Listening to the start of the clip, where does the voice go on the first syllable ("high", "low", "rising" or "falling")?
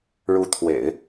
rising